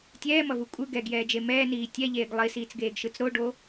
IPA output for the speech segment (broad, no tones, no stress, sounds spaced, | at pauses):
tʲ ɛː m ʌ v u kʷʼ ɯ ɡ ɛ ɡ j ɛː d͡ʒ e m ɛː n iː tʲ ɛ ʎ eː ɡ lˠ i s iː t͡s ɡ eː ɡ ʃ ɯ t͡s ɾ o ɖ o